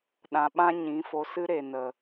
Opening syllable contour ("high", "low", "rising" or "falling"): low